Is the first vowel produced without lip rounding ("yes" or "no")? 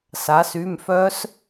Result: yes